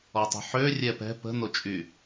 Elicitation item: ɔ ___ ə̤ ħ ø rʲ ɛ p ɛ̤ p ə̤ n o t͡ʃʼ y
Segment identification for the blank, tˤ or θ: tˤ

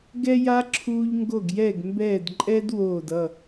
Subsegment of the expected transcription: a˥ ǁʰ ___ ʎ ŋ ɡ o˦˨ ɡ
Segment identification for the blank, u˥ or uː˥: uː˥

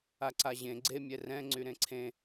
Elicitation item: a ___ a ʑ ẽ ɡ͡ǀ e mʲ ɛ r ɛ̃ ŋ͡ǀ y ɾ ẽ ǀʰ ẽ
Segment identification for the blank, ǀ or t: ǀ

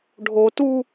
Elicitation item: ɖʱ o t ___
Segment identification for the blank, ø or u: u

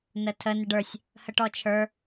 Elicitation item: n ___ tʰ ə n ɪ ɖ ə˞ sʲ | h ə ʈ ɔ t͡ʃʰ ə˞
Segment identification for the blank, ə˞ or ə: ə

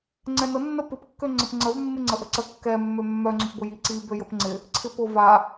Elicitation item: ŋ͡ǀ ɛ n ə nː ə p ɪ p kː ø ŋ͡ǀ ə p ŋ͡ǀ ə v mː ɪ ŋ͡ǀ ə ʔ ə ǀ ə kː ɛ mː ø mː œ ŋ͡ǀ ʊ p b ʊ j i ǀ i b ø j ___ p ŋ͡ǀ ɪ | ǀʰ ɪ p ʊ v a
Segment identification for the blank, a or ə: ə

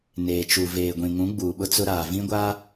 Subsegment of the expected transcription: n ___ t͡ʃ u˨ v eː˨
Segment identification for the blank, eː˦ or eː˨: eː˨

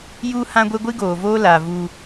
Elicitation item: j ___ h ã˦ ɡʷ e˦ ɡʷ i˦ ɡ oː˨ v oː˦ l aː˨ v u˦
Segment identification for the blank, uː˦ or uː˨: uː˦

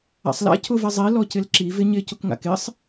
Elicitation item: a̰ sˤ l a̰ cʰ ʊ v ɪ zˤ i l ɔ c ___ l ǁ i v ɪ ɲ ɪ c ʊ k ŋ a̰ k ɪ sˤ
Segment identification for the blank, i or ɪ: ɪ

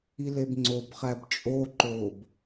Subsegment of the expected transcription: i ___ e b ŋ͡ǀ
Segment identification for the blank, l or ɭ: l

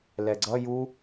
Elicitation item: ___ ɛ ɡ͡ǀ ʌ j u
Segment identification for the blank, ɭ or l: l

